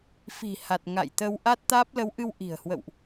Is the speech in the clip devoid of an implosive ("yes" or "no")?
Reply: yes